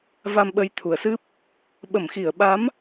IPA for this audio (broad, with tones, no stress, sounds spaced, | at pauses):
v a˧ m ɓ ə˨˦ j t̪ʰ u˨˩ ə̯ s ɨ˦˥ p̚ | ɓ ə˧˩ m x i˧˩ ə̯ ɓ a˨˦ m